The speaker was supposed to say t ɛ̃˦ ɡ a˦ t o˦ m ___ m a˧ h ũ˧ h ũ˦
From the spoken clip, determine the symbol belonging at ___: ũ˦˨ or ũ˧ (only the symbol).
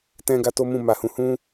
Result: ũ˦˨